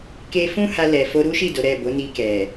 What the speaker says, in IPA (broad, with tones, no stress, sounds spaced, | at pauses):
k e˧ f ũ˦ h a˧ l ɛ˨ f o˧ ɾ u˦ ʃ i˦˨ d o˨˦ ɾ ɛ˦˨ b o˨˦ n i˧ k ɛ˨